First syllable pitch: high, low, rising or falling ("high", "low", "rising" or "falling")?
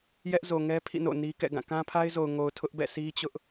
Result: high